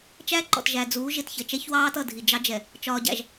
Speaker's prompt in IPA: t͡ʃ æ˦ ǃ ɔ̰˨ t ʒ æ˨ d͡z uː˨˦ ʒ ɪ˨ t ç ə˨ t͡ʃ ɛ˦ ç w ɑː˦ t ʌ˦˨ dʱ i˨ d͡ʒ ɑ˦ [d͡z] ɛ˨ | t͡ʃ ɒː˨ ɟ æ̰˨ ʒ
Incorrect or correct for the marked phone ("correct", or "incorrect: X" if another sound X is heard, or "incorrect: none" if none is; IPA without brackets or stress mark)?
incorrect: d͡ʒ